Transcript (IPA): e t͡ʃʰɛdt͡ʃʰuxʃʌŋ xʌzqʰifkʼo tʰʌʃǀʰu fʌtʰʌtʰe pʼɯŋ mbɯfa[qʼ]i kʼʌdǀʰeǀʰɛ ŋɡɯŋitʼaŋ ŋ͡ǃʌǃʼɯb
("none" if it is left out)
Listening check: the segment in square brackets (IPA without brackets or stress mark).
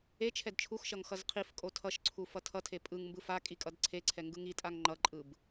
kʼ